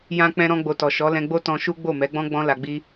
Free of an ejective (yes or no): yes